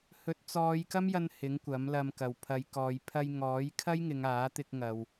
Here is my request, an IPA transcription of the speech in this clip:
h ɵ˨˥ t̚ t͡s ɔː˨˧ j k ɐ˥ m j ɐ˧ n h ɪ˨˥ ŋ kʷ ɐ˨˥ m l ɐ˧ m k ɐ˨ w pʰ ɐ˨˧ j k ɔː˨˧ j pʰ ɐ˧ j ŋ ɔː˨˥ j kʰ ɐ˥ j ŋ ɪ˨˧ ŋ aː˨˥ t̪ ɪ˧ k̚ ŋ ɐ˨ w

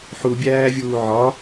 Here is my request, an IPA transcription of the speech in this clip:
ħ u bʲ æː vʲ uː ʕ ɒ

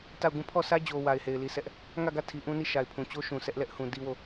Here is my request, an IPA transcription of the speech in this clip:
t a˦˨ ʊ̯ ɡ ũ˦˨ pʰ ɔ˦˨ sʰ ä˦ d͡ʑ o˨ w a˨ ɪ̯ h e˨ ɪ̯ l i˨ s ɛ˦ ʔ | ŋ ä˦˨ ɡ ä˦˨ tʰ i˨ ʔ ũ˦ n i˦˨ ʃ a˨ ɪ̯ pʰ ũ˨ t͡ɕ o˦ ʃ ũ˨ s ɛ˦ ʔ l ɛ˦ ʔ h ũ˨ d i˦ w o˦˨

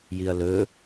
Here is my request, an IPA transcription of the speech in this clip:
j i ɐ̯ l ɵ

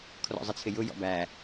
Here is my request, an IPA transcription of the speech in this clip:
kʰ r ɔ̰ zˤ ə t͡sʰ ɪ j ʊ j ɔ̰ b æ

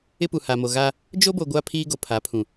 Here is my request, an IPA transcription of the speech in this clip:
ɪ˦ p u˨ h a˨ m o˨ ɣ a˦ | d͡ʒ o˦ b o˨ ɡʷ a˦ pʰ iː˦ ɡ o˨ pʰ a˨˦ pʰ ũ˨

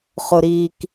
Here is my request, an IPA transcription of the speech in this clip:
χ ʊ˨ ɾ i˨ k

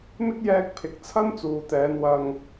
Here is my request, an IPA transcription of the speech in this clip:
m ɪ˥ k̚ j ɛː˧ k̚ pʰ ɪ˨ k̚ t͡sʰ ɐ˥ n t͡s uː˨ t̪ ɛː˨˧ n w ɐ˨ ŋ

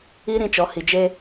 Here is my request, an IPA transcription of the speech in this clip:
i˦ ɾ ĩ˧ t͡ʃ ɔ˨˦ h i˨ d͡ʒ e˧

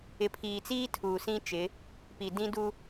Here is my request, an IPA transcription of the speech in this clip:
ɪ˨ pʰ iː˨ t͡s iː˦ tʰ uː˨ s ĩ˦ t͡ʃ ɪ˨˦ | p i˨ d ĩ˦ d u˦

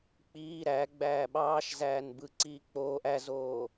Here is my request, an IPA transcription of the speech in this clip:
k͡p iː ɾ æ ɡ͡b æː ɓ ɑː ʃ z æː n b ɯ ǀ iː k͡p oː ʔ æ z oː

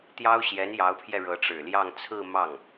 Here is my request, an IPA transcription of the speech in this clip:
t̪ j ɑ˥ ʊ̯ ɕ j ɛ˧˥ n j ɑ˧˥ ʊ̯ pʰ j ɛ˧ ɻ ɤ˧˥ ʈ͡ʂ ɻ̩˨˩ l j ɑ˥˧ ŋ t͡sʰ ɹ̩˥˧ m ɑ˥˩ ŋ

